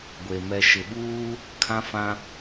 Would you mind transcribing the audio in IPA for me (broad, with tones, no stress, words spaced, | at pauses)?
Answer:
ɡʷe˨ mɛ˨ʃɪ˨ɓuː˦ | kʰã˦fã˦